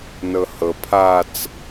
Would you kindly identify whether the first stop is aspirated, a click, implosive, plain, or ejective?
aspirated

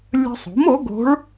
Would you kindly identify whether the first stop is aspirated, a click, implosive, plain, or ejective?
plain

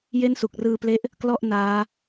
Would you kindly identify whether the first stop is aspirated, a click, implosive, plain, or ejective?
plain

